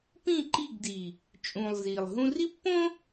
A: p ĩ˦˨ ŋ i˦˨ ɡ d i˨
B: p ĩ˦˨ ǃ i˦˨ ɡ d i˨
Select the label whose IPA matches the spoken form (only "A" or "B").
B